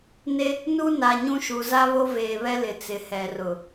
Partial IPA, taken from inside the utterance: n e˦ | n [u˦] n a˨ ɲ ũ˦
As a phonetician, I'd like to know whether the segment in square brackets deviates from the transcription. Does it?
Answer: no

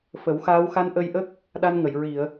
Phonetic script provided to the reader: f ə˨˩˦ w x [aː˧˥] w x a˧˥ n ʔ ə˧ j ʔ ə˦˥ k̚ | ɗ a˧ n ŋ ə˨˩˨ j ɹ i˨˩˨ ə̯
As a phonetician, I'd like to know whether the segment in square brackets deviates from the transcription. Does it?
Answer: no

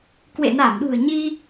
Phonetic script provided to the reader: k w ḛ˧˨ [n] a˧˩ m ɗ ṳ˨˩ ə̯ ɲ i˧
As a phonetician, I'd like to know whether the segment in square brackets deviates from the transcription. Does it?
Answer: no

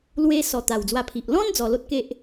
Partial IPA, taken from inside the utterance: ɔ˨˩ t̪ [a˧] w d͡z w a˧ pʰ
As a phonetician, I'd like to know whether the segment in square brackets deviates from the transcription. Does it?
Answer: yes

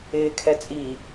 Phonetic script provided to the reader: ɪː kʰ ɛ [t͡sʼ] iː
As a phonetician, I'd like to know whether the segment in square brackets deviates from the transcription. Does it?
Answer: no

